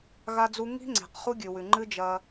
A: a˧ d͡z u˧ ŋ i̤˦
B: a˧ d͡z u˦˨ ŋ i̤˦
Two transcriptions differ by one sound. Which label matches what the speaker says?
A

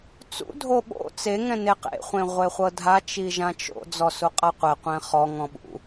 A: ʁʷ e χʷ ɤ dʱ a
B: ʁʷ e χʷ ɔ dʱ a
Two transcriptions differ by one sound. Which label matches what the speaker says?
A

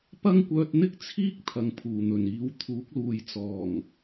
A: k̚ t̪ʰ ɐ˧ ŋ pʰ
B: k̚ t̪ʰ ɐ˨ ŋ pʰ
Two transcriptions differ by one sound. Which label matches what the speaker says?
B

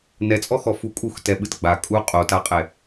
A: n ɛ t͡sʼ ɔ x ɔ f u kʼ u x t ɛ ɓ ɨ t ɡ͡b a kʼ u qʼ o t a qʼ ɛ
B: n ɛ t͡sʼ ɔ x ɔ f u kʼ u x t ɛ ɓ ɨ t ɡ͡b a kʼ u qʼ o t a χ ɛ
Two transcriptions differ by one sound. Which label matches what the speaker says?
A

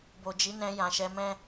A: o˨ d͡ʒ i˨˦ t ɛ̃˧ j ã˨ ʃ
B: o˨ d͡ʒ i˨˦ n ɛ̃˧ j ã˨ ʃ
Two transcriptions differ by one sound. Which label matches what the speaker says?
B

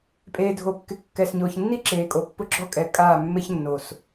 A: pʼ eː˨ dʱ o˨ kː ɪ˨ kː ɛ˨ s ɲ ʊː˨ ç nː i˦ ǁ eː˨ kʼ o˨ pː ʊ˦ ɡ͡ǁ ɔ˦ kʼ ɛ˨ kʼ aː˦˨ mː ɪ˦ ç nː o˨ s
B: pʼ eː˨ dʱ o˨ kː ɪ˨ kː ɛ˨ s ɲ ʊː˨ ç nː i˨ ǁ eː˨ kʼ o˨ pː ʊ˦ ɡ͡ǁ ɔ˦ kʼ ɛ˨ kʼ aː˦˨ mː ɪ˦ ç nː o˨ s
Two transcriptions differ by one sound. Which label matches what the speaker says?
A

